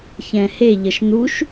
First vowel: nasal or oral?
nasal